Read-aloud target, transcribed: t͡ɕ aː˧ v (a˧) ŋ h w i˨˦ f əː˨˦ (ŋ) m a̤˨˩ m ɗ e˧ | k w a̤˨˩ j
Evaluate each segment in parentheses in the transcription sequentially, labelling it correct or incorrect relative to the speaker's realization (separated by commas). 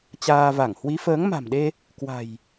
incorrect, correct